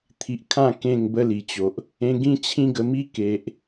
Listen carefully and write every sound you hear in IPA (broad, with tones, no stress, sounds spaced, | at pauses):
t̪ʰ i˨ ʔ kʰ ã˥˧ k ẽ˥˧ ŋ b ə˦ l i˨˩ t͡ɕ o˨ ʔ | ẽ˧ ɡ ĩ˦ t͡ɕʰ ĩ˦ ɡ ə˧ m i˦ k e˨ ʔ